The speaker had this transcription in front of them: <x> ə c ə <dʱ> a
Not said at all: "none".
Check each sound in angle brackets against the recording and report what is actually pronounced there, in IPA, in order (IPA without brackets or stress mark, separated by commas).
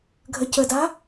ɡʱ, d